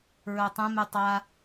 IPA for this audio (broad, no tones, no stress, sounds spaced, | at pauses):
ɹ œ tˤ ə̃ m y tˤ a